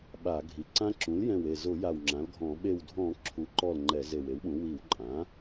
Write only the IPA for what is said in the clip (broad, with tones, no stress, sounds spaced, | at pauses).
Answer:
ɓ a˧˩˧ ɡʱ i˩˥ ǀ ã˦˥ ǁ ũ˩˥ l j ɛ̃˧˩ w e˧˩ z ʊ˧˩˧ j a˧˩ w ŋ͡ǁ ã˩˥ l ɡʱ ɔ̃˧˩˧ ɓ e˧˩ w dʱ ɔ̃˧˩˧ ǁʰ u˩˥ ǃ ɔ˧˩ l ŋ͡ǃ ɛ˧˩˧ z e˧˩ w e˩˥ w ɓ ũ˩˥ w i˧˩˧ w ǃʼ ã˩˥